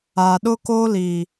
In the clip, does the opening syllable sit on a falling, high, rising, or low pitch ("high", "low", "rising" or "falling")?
low